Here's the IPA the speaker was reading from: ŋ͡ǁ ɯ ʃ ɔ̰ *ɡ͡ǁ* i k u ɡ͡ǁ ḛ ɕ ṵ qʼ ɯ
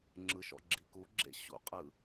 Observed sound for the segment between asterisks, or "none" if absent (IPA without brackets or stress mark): ɡ͡ǁ